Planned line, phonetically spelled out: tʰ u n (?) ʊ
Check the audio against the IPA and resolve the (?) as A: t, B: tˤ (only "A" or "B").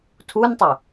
B